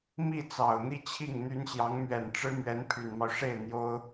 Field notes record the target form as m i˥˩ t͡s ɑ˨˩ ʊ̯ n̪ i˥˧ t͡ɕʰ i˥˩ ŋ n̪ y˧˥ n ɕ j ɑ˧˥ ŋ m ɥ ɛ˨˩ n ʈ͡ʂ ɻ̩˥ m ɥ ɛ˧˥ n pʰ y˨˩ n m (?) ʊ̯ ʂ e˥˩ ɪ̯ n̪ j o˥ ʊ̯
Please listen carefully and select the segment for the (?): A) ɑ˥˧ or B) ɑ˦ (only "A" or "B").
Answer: B